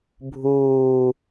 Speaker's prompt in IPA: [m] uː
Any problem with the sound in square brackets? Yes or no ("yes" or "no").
yes